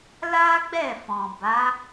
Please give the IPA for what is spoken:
l a˦ ɡ͡b ɛ˦˨ f ɔ̃˨ b a˨˦

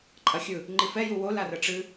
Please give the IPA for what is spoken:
ǃʼ ɐ xʲ ɯ | ŋ͡ǃ i f ɛ j u w o l a r ə ʈ͡ʂ ɨ

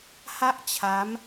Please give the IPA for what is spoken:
h a˥˩ ʔ t͡ɕʰ a˦˥ m

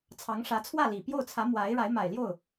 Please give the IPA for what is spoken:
t͡sʰ ɑ˧˥ ŋ ʂ ä˧˥ t͡sʰ w ä˥˩ l i˨˩ p j o˥˩ ʊ̯ t͡sʰ ä˧˥ m w a˧˥ ɪ̯ ɻ a˧˥ ɪ̯ m a˨˩ ɪ̯ l j o˥˩ ʊ̯

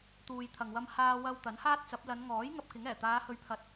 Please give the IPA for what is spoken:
t̪ uː˨ j t̪ʰ ɐ˨ ŋ w ɐ˧ m h aː˧ w ɐ˧ w t̪ ɐ˨˥ n h aː˥ t̚ t͡s ɐ˨˥ p̚ l ɐ˨˧ n ŋ ɔː˨˥ j ŋ ɐ˧ p̚ k ɪ˨˥ ŋ ɛː˨˩ t̪ aː˨˧ h ɵ˨˧ ɥ pʰ ɐ˨˥ t̚

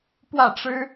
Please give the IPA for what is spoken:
p w ä˥˩ ʈ͡ʂ ɻ̩˥

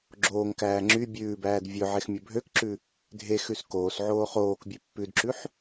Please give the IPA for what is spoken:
ɡ͡ǁ oː ŋ k æː ŋ͡ǁ y bʲ ʉː b æː d vʲ ɵ ʕ e x mʲ ɵ bʱ ø k ǁ ʉ | dʱ e x ʉ s k oː s ʕ oː χ oː k bʲ ʉ pː ʉ d ǁ ʉ ħ

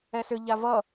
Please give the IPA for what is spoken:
ɛ s ʏ ʎ a v ʌ

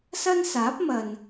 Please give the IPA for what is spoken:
s ɐ˥ n s aː˨˥ p̚ m ɐ˨ n

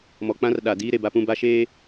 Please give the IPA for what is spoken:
m ɔ˨ k͡p ã˦ r ɗ a˨ d iː˦ ɾ e˨ b a˦ p ũ˦ b a˦ ʃ eː˦

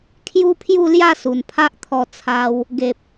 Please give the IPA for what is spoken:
kʰ j u˦ pʰ j u˥˧ l j a˥˧ s u˨˩ n pʰ a˦ ʔ t̪ʰ ɔ˧ t͡sʰ a˧ w | ɡ e˨ p̚

